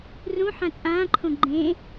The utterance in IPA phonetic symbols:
r ũ ħ ã t͡sʼ ãː ǃʰ õ ɡ͡ǃ ẽ

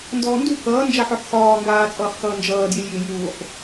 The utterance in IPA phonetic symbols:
n d ɔː n d u k ʌː n d͡ʒ a ħ ɔ ħ x ɒː ŋ ɡ aː t͡sʼ ʌː χ x ʌː n d͡ʒ ʌː d j ɪ lʲ j ɪː j uː χ

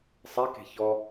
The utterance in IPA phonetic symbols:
sˤ i k e̤ ç ɔ

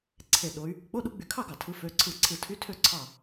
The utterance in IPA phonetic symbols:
ǀʰ e˧˩ ɗ o˧˥ y̯ | k͡p o˧˥˧ ɗ u˧˥ ɡ͡b y˧˩ kʰ ɑ˥˨ ɡ ɑ˩ tʰ ɯ˧˥ f ø˧˥˧ ǀʰ ɯ˧˩ ǀʰ ɯ˧˩ tʰ y˧˥˧ tʰ ø˥˨ ǀʰ ɑ˥˨

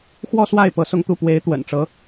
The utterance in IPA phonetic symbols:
x w ɔ˥˧ s w a˥˩ ɪ̯ p ɤ˧˥ s ʊ˥˧ ŋ t̪ u˥˩ p w e˧˥ ɪ̯ t̪ w ə̰˨˩ n ʈ͡ʂ ɤ˧˥

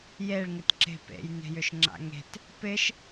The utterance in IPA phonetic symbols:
j e ɭ ŋ ɪ t ǁ e̤ p ḛ j n e̤ j ʏ ʃ ŋ͡ǁ a̰ ŋ e̤ t | p ɪ ʃ

